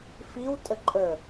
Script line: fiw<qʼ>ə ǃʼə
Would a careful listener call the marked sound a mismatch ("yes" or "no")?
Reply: yes